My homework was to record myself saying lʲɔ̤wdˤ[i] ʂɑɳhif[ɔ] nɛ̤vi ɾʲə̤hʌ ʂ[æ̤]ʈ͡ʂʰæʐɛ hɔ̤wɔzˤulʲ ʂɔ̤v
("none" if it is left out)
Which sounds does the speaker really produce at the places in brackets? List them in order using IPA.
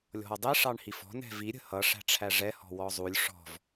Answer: i, ɔ̤, æ̤

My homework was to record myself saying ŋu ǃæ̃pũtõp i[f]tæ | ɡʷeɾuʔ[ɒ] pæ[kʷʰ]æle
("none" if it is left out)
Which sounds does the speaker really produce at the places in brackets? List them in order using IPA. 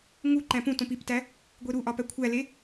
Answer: p, ɒ, kʷʰ

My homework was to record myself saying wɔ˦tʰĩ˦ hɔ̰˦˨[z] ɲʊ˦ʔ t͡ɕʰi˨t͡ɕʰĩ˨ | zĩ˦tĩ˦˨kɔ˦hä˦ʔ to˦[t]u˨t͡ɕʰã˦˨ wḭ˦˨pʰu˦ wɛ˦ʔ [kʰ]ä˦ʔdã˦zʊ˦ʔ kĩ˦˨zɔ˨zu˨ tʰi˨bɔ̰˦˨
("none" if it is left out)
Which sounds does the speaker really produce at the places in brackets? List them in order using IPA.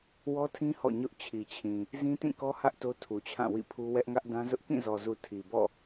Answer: none, tʰ, ŋ

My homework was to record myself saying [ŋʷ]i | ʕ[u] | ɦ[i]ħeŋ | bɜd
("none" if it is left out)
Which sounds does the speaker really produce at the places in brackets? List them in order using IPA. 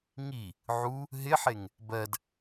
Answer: ŋ, u, ɪ

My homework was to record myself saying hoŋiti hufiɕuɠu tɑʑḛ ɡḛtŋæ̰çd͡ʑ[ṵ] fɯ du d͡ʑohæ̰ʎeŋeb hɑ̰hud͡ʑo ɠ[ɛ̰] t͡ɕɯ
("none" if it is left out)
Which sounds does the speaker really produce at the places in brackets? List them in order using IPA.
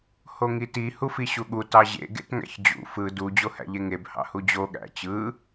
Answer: ṵ, æ̰

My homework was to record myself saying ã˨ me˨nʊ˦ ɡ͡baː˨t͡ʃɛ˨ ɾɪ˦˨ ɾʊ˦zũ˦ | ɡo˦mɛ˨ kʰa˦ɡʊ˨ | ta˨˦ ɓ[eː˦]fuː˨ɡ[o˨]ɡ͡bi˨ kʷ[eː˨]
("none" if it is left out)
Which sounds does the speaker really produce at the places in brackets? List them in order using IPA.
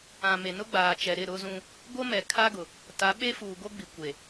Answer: e˦, o˦, e˨

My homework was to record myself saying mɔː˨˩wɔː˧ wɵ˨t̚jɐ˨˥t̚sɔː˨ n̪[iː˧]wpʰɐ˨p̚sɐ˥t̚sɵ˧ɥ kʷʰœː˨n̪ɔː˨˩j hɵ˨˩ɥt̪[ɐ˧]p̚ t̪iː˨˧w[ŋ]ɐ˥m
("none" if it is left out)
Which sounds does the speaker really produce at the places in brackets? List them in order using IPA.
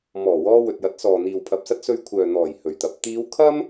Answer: iː˨, ɐ˨˥, kʰ

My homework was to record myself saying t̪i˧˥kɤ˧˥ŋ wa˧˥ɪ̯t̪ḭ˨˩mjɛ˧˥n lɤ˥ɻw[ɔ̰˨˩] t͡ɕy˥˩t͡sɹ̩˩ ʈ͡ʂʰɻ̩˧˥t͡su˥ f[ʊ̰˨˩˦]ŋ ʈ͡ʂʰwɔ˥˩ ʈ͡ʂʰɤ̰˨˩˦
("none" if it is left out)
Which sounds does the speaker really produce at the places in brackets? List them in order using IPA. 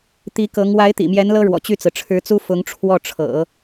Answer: ɔ̰˨˩, ʊ˧˥

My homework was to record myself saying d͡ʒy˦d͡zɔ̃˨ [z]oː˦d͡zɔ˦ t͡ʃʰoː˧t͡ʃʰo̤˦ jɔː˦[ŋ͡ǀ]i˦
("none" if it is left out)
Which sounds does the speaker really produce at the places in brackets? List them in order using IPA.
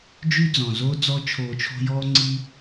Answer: z, ŋ͡ǀ

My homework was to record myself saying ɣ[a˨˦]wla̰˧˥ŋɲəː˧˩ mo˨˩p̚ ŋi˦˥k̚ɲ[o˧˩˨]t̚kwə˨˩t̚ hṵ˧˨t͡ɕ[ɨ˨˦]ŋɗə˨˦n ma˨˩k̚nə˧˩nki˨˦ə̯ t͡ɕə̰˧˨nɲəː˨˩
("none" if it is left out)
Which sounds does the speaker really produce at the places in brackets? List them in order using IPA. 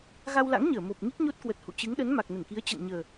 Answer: a˧, o˦˥, ɨ˨˦

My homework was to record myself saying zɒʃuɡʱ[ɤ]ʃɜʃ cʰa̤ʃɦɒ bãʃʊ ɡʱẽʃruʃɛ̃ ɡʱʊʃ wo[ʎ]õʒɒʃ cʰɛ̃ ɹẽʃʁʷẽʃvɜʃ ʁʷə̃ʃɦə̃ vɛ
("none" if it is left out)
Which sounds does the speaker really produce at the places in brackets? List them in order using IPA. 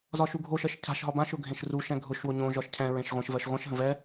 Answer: o, ɲ

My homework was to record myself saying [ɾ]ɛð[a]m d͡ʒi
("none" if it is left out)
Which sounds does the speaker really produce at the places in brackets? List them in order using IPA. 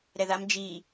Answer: ɾ, a

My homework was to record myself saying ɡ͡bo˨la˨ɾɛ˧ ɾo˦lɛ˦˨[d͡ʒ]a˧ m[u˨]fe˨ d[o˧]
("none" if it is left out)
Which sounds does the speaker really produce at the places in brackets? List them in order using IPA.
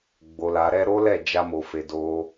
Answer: d͡ʒ, o˨, o˧

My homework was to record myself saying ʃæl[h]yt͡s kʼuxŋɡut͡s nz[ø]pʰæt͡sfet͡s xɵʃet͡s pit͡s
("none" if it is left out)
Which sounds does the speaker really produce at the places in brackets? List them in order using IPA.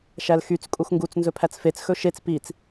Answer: x, ɵ

